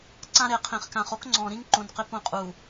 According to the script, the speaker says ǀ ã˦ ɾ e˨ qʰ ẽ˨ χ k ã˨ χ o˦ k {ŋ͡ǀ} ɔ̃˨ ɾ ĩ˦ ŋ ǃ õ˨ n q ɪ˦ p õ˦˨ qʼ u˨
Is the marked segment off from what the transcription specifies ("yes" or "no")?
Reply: no